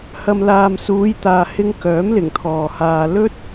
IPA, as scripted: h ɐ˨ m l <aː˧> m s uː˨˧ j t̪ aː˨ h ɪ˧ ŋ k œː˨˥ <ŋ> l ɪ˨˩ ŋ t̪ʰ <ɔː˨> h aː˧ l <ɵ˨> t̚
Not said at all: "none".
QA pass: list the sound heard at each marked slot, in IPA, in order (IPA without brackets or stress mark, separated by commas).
aː˨, m, ɔː˨, ɵ˥